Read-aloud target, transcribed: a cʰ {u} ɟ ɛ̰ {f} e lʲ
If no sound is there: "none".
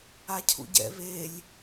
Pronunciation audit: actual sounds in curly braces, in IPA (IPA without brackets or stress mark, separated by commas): ṵ, β